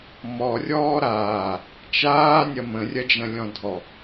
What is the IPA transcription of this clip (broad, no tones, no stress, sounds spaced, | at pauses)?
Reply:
m ɔ rʲ ɔː ɾ aː | t͡ʃ aː nʲ ɐ m ə̃ rʲ ɐ d͡ʒ ɐ̃ lʲ ɔ̃ dʱ ɔ